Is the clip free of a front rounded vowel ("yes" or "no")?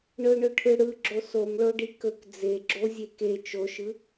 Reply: yes